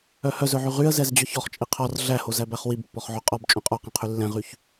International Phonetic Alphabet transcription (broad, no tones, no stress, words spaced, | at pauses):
œhœzœʕy ʁyə̯zɛzd͡ʑœç ɔχt͡ʃʼi qʰɔr ɮæhozæbæχ wibpːɔχʕo qʼɔb t͡ʃʼœ̃qʼɔqɛ̃qʰy lːɛ̃ʁyç